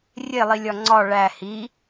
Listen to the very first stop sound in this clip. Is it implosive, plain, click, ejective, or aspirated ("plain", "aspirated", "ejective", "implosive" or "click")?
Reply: click